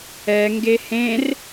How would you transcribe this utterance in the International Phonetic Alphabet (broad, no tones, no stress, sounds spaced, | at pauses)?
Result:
ɛ ŋ ɡ e h ẽ r